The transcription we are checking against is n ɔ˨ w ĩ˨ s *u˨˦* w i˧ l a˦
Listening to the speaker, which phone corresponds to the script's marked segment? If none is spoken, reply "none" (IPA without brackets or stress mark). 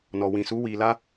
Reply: u˨˦